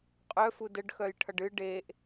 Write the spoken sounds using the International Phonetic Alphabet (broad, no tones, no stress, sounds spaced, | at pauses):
qʼ œ f u d ə ɖ x œ j ʈʰ ʌ ɖ ɨ ɖ e ʔ